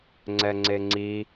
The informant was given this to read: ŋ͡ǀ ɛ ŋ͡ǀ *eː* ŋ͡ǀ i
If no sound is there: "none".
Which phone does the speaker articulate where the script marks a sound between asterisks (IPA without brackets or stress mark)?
e